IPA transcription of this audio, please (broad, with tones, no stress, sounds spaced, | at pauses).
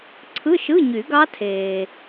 ǀʰ ɯ˧˥˧ ʃ ɯ˧˥˧ ɲ y˨˩˦ ɡ ɑ˦˥ tʰ eː˨